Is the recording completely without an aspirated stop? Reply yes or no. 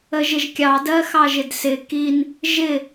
yes